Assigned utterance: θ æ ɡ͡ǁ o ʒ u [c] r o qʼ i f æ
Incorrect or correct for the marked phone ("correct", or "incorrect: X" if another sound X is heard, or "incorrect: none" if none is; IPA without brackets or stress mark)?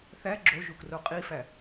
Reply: incorrect: k